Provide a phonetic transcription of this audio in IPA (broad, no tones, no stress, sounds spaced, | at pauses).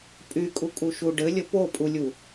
pʼ y kʼ u kʼ u ʃ u ɖ ɘ lʲ ə p o pʼ u lʲ u